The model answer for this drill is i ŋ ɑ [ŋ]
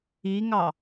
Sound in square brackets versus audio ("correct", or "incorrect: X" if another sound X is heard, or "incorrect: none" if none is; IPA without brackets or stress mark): incorrect: none